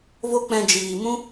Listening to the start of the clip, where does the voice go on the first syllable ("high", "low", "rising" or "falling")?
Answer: high